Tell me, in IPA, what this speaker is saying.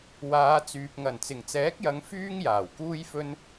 w aː˨˧ t͡s yː˨ p̚ ŋ ɐ˨˩ n t͡s ɪ˨˩ ŋ t͡s ɛː˨˥ k̚ j ɐ˨˧ ŋ f yː˥ ŋ j aː˨˩ w k uː˥ j f ɵ˥ n

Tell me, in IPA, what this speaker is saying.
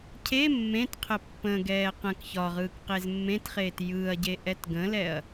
cʰ e mː ẽ t qʰ ə pː ə̃ ɡ ɛː q ə̃ k ç ɒ ʁ ɯː k q e z mː ẽ t χ eː t j ɯː ɐ̯ ɟ e ʔ ɛ t ɡ ə̃ l ɛ ɐ̯

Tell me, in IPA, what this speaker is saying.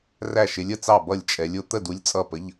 r æ˥˨ ʃ ɪ˧˥ lʲ ə˨ t͡s ɑ˥˨ b ʌ˥˨ lʲ t͡ʃʼ ɛ˧˥ lʲ ʊ˧˥ t̪ ə˥˨ d u˧˥ lʲ t͡sʼ ʌ˥˨ p ə˧˥˧ ʎ

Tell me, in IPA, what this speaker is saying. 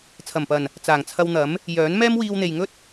t͡sʰ ɐ˨˩ m p ɐ˨˩ n | t͡s aː˨˩ ŋ t͡sʰ ɐ˧ w n̪ ɐ˨˥ m | j œː˨˥ n m ɛː˥ m w iː˧ w n̪ e˨ j ŋ ɵ˥ t̚

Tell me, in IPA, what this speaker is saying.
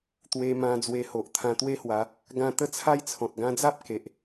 t̪ w e˧ m ã˧ d͡z w e˧ h o˨ ʔ t̪ʰ ã˧ t̪ w e˦ h w a˨˦ | ɡ ã˥˧ t̪ ə˦ t͡sʰ a˦ j t͡sʰ ɔ̃˨ t̚ ɡ ã˧ d͡z a˦ p̚ k e˨ ʔ

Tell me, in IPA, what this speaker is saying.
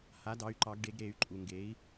h a˩˥ d ɑ˩˥ y̯ ǃ ɑ˨˩˦ ɡ ɖ e˨˩˦ ɡ ɾ e˨˩˦ y̯ ǃʼ u˩ ŋ ɡ e˩˥ i̯

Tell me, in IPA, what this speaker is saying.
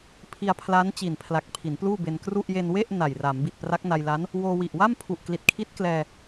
pʰ i˧ a̯ pʰ l a˦˥ n t͡ɕ i˨˩ n pʰ l a˨˩ k̚ pʰ i˩˦ n p l uː˥˩ b e˧ n k r u˥˩ ʔ j e˧ n w e˥˩ ʔ n a˨˩ j r a˩˦ m b i˨˩ t̚ p r a˦˥ k̚ n a˧ j l a˦˥ n | w oː˧ w i˨˩ ʔ w a˥˩ m pʰ u˨˩ ʔ k l i˨˩ t̚ kʰ i˦˥ t̚ k l ɛː˧

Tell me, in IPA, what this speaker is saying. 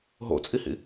ɦ o̰ t͡sʼ i h ḭ

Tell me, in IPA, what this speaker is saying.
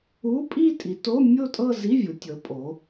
u˧˥˧ pʼ i˥˧ tʼ i˩˧ t o˧˥˧ mʲ o˥˧ tʼ ɤ˥˧ z i˧˥˧ vʲ u˩˧ tʲ ɤ˩˧ pʼ o˩˧

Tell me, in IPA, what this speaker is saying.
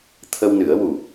t̪ʰ ə˧ w n ɨ˨˩˦ ə̯ w u˨˩

